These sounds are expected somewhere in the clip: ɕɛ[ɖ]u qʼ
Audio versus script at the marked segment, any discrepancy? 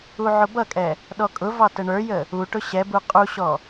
yes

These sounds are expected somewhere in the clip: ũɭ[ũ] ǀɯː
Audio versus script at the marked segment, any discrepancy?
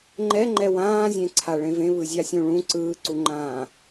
no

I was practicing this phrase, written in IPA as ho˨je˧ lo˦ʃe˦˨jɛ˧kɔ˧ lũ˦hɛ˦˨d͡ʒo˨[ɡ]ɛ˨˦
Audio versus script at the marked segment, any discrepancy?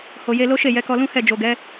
no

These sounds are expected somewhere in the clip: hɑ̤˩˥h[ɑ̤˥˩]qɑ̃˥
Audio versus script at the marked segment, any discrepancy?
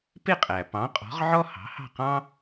no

